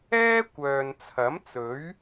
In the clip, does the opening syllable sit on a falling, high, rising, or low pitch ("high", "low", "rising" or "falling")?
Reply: high